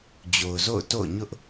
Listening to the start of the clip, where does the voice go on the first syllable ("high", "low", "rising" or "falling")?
low